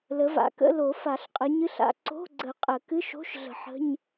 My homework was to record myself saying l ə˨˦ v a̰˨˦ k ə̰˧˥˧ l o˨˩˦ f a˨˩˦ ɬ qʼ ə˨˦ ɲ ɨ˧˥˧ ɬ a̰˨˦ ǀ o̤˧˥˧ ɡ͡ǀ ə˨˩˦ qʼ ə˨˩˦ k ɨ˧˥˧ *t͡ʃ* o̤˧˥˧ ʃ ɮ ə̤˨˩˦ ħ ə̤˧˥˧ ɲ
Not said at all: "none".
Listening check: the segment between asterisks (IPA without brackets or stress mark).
ʃ